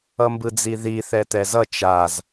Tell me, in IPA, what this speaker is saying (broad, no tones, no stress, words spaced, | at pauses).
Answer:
ʌmbɯd͡ziði θɛtɛzʌ t͡ʃaz